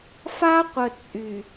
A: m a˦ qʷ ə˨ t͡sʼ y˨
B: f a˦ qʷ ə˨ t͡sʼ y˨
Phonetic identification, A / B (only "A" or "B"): B